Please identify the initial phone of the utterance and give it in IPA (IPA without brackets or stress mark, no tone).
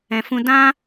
ɛ̃